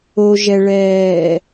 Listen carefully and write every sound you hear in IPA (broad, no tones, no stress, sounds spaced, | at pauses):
o ʒ ɛ ɭ ɛː